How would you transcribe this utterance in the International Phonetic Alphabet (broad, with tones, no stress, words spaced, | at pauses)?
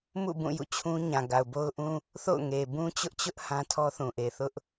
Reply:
mṵ˦˨bũ˦˨ jṵ˦˨t͡ɕʰũ˦ ɲã˨ɡa˨ʊ̯bo˦ʊ̯ʔũ˦ | θo̰˦˨ʊ̯ŋe˨ bũ˦t͡ɕʊ˦ʔt͡ɕʊ˦ʔ hã˦tʰɔ˦θũ˨ ʔe˨θʊ˦ʔ